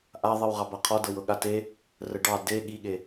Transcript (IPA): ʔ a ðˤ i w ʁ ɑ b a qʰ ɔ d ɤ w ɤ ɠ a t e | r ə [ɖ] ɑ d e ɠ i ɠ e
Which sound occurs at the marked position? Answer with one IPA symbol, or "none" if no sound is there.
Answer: ɖ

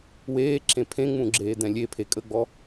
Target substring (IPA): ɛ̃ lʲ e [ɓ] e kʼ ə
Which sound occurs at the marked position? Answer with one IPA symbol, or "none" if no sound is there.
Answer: pʰ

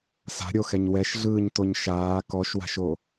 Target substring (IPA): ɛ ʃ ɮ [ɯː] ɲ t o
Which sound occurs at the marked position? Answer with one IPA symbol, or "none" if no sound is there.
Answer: ɯː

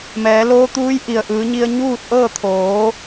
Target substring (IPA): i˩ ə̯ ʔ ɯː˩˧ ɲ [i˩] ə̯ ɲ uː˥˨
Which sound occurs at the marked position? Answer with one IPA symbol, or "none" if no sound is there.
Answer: i˧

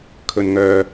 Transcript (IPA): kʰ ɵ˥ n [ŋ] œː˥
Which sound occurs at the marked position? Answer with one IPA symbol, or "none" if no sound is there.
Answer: ŋ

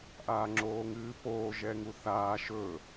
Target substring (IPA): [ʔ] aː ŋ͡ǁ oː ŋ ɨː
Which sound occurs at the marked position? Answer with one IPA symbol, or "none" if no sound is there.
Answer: ʔ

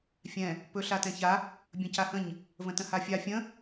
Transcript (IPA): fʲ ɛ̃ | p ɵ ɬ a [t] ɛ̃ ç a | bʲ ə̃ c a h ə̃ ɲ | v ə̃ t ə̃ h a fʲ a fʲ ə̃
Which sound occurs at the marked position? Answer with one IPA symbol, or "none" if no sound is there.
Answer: t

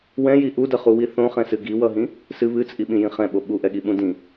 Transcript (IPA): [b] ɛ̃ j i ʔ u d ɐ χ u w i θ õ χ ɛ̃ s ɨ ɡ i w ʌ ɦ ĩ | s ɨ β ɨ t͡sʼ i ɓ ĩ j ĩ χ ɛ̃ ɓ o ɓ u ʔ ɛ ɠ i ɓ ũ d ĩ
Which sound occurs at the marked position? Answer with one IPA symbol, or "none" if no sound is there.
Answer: w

